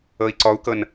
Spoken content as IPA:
ɤ i̯ ǀ ɔ u̯ k ɤ n

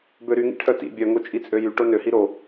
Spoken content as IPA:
b ø ɾ y ŋ ḭ ʈʰ œ t ḭ bʲ œ ŋ o t͡ʃʼ i t͡sʼ ø j y ʈ o n ø h i ɾ o

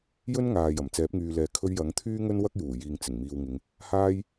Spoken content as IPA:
j ɵ˥ n ŋ aː˨ j ɐ˨˩ m t͡s ɛː˨˥ p̚ ŋ yː˨ l ɛː˨ kʰ ɵ˧ ɥ j ɐ˨˥ ŋ t̪ʰ yː˥ ŋ ɵ˥ n w ɐ˥ k̚ j uː˨˩ j iː˨ ŋ t͡s ɪ˨˩ ŋ m iː˨ w ŋ ɪ˨˧ ŋ | h aː˥ j

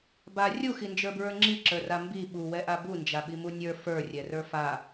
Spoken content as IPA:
b a rʲ u x i n d͡ʒ ə˞ b ɹ ə˞ ŋ͡ǁ i ǁ ə˞ r a m b i ɓ u w ɛ ʔ a b u n d͡ʒ a ɓ i m u nʲ ə˞ f ə˞ rʲ ɛ r ə˞ f a

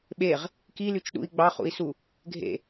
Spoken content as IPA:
ɓ e ʁ | k i l y t͡ʃ ɗ ṵ i̯ ɡ͡b ɑ χ ṵ i̯ s u | ɡʱ ḛ

